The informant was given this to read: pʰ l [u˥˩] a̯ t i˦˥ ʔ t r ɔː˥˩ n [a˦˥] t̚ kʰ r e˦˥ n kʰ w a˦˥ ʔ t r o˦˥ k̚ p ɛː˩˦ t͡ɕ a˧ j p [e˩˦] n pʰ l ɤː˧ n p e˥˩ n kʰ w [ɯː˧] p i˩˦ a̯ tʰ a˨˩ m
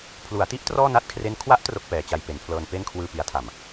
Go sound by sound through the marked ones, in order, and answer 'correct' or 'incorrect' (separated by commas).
incorrect, correct, correct, correct